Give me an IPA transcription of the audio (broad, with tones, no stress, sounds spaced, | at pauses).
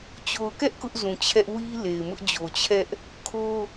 t͡ɕ o˨ ʊ̯ k ɛ˦ ʔ k ʊ˦ ʔ z ũ˨ t͡ɕʰ ɛ˦ ʔ w i˦ l e˨ ɪ̯ m ʊ˦ ʔ d͡ʑ o˨ t͡ɕʰ ɛ˦ ʔ | kʰ o˦